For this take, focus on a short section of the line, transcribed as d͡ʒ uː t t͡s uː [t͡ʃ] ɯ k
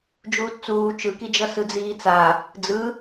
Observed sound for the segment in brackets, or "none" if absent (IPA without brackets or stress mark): t͡ʃ